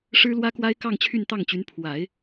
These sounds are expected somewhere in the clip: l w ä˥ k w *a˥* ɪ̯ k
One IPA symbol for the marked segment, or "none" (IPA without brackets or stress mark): a˥